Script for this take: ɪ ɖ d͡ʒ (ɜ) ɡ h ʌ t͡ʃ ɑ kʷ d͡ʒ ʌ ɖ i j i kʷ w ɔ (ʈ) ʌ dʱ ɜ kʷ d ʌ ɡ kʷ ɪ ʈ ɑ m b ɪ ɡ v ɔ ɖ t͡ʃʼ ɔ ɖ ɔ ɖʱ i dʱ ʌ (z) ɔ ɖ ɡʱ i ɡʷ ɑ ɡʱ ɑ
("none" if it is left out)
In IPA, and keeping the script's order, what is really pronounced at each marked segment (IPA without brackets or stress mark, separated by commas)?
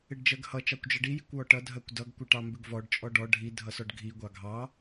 ɜ, ʈ, s